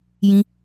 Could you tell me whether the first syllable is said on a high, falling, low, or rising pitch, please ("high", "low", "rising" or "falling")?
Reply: high